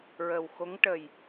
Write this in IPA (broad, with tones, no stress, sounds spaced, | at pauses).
ɹ ə˨˩ w x o˧˥ ŋ ʈ ə˨˩ j